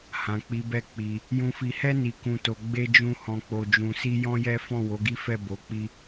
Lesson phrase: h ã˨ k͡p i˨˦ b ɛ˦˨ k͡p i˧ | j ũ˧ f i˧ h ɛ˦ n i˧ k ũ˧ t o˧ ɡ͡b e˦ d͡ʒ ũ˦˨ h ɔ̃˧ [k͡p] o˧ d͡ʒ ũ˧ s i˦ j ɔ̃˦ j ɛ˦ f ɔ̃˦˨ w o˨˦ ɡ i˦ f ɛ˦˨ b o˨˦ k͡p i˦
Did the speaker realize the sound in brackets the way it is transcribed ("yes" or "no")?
yes